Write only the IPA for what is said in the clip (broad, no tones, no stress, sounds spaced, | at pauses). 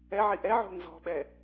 ɛ ʕ i ʔ ɛ ʕ o̤ n z ɔ̤ ɓ ɛ